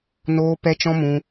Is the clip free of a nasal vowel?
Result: no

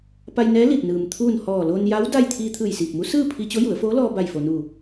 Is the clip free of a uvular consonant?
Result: yes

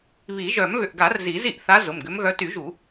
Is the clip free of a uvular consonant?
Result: yes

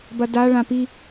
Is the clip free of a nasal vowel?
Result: no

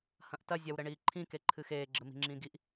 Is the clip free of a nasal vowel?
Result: no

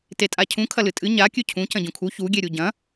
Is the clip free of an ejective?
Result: no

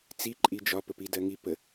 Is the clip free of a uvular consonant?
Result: yes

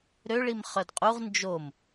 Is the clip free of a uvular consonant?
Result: no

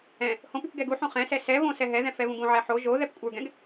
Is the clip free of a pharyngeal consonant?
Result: no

